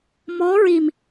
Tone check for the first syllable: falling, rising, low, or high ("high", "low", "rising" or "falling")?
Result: rising